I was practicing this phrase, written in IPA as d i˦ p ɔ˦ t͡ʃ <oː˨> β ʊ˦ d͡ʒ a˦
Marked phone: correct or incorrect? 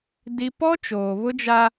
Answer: correct